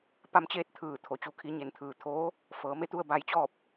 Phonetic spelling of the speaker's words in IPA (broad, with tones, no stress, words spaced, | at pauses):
pa˧˥mt͡ɕeː˧˥t̚ t̪ʰɯː˧˩ t̪ʰo˩˧t͡ɕu˧ kʰi˧ɲe˧˩nt̪ʰɯː˩ t̪ʰoː˧˥ | fɤː˩˧me˧˥t̪u˧ə̯ ba˧jt͡ɕɔː˥˨p̚